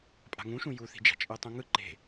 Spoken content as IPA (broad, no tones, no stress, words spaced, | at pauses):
pʼa̤ŋũʃũ juθi̤d͡ʒa̤ t͡ʃʼɯtˤũŋɯ ǃe̤